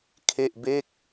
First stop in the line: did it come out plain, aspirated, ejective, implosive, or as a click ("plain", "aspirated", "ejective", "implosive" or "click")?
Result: aspirated